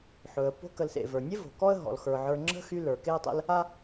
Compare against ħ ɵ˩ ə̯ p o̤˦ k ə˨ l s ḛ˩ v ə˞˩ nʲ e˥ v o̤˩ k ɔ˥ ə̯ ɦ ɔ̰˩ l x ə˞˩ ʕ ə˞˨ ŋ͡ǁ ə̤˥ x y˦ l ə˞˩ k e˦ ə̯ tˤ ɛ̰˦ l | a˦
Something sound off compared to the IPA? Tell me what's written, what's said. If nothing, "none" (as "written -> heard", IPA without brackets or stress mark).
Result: none